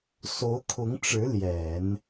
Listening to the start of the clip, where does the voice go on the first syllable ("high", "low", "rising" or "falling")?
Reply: rising